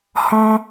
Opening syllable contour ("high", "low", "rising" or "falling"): high